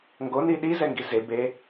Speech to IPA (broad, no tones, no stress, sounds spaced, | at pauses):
ŋ ɡ o n i ɗ i z ɛ ŋ ɡ i z e b e